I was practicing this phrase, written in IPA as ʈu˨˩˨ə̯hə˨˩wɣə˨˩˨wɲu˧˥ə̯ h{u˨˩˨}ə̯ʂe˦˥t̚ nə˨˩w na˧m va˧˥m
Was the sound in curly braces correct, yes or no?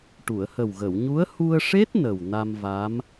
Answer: no